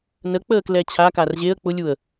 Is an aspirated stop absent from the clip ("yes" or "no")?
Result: no